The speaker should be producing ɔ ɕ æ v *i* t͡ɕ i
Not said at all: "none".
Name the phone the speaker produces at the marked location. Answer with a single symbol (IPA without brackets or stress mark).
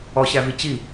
i